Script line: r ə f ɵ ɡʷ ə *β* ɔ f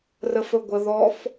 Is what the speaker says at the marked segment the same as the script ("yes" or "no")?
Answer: no